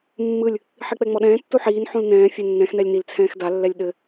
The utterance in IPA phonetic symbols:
mː ɯ lʲ | ħ i k͡p ɛ ŋ͡m ɔ ɗ ɛ̃ː tː u ħ iː n ħ ũ l n ɛ̃ː fʲ ɛ nː ɛ̃ x n ɛ lʲ n i l t͡sʰ ɛ̃ː x d a lː ɛ lʲ ɗ ɘ

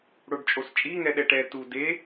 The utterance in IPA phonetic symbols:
ɽ o ɖ t͡ʃʼ o s t͡ʃʼ i ŋ ɛ ɗ ɛ ʈ ɛ t u d e

